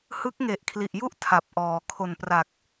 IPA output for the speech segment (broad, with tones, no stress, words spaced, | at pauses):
hɯ˦˥k̚ŋe˨˩ʔkʰli˨˩ʔju˥˩ʔ tʰa˨˩p̚ ʔɔː˩˦ kʰo˨˩npra˨˩k̚